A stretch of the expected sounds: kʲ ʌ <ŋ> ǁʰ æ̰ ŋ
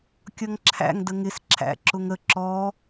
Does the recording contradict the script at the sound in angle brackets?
no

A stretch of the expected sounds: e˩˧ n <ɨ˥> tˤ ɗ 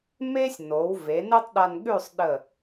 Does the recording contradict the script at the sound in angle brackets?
no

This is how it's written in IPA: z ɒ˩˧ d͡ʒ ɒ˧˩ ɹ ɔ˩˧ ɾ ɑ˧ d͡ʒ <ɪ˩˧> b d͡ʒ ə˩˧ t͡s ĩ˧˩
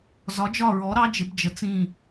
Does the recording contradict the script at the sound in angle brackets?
no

